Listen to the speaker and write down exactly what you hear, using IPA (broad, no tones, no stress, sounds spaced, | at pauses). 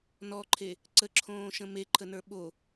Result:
n ɔ ǃʰ e | ǀ ə ǁʰ õː ʃ ə̃ m e ǃʰ ə n ə˞ ɓ o